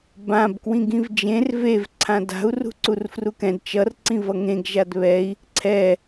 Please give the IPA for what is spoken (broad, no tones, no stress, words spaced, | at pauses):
bãb kwĩɡĩvd͡ʒẽr vev ǀʰãda̤u̯ rṳǀurfrukɛ̃d t͡ʃʌr ǀĩvʌŋẽɡ ʒadβɛi̯ | ǀʰɛ